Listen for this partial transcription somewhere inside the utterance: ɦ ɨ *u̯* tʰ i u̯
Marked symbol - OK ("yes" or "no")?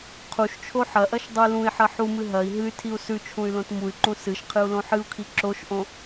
no